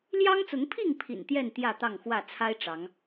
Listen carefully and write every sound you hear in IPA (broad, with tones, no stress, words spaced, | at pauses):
ljɑ˦ŋt͡sʊ˨˦ŋpʰi˥˨ŋ pʰḭ˨˩nt̪jɛ˥˨n t̪jä˥˨t̪ɑ˥˨ŋxwä˥˨ t͡sʰa˦ɪ̯ʈ͡ʂɑ˨˦ŋ